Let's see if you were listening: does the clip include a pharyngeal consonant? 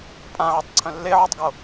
yes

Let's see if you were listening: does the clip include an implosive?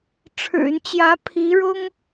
no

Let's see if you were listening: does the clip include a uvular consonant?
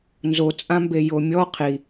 yes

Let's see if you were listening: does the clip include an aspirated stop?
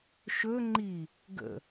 no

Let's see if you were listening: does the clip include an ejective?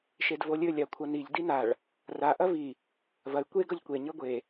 no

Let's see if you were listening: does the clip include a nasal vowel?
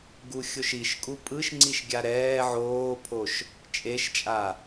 no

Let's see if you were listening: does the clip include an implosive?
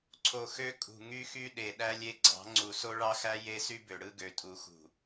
yes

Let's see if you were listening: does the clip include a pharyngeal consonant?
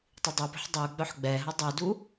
yes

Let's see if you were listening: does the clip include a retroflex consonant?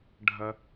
yes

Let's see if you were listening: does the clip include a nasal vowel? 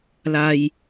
no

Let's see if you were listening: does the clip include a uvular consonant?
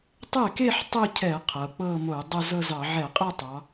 yes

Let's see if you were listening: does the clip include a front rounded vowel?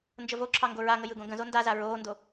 no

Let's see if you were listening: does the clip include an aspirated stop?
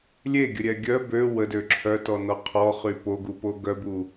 yes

